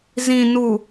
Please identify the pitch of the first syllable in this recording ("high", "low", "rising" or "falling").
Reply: low